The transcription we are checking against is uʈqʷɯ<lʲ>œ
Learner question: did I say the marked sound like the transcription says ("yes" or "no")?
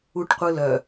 no